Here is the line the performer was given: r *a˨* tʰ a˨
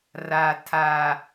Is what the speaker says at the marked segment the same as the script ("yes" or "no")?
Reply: yes